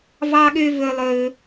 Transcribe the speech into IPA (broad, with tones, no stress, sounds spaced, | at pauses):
v ɑ˨ ɠ ø˨ v ɵ˩ lˠ ɵ˩